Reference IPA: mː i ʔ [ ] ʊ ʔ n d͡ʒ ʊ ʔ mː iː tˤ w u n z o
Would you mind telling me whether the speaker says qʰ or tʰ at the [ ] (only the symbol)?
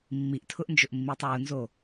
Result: tʰ